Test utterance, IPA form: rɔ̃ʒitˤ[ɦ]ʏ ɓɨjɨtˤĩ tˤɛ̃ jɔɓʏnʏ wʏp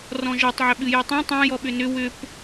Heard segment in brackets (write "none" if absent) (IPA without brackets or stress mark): ʕ